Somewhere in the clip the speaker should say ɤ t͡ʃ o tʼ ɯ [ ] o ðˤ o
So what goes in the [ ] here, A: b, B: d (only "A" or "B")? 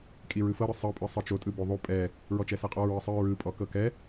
A